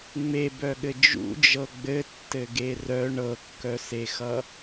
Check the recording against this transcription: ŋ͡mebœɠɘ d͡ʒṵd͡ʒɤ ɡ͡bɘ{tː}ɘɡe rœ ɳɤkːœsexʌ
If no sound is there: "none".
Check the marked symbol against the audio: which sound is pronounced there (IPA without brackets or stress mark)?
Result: tː